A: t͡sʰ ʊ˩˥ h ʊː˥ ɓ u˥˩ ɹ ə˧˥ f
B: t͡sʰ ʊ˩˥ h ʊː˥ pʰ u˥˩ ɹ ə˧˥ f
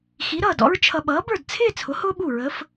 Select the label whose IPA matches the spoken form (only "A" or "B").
A